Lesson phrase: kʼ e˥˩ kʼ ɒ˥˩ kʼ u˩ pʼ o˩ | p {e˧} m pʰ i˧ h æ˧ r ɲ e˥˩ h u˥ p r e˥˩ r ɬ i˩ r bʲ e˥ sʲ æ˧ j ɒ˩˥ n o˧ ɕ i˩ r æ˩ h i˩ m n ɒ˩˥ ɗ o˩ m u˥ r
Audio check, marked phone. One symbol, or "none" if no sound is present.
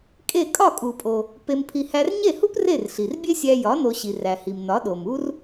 e˧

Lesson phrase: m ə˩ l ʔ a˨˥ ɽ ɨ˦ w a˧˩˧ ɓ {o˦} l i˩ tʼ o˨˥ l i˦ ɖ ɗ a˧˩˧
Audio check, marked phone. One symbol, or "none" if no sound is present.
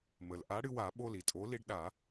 o˦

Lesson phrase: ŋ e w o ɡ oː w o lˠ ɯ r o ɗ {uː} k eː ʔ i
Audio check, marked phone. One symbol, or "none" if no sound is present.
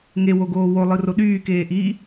yː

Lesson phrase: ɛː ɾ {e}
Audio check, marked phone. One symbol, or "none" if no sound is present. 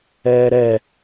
ɛ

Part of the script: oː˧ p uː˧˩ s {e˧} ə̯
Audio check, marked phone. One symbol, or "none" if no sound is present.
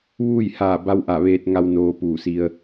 i˧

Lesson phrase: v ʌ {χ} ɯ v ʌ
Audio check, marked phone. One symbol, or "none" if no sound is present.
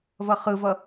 χ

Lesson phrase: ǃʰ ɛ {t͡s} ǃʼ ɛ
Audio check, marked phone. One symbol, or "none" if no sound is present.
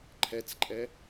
t͡s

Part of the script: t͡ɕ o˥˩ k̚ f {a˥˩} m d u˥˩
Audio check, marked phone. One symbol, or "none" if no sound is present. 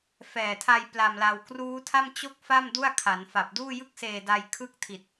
a˥˩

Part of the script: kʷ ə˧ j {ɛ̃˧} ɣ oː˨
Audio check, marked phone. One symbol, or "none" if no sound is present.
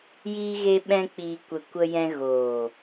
ɛ̃˧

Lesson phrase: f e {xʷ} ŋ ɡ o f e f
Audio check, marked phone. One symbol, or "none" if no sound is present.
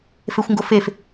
xʷ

